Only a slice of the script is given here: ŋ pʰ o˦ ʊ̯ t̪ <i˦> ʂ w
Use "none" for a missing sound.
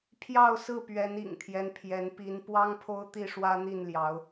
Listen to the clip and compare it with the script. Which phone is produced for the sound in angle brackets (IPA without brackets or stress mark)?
i˥˨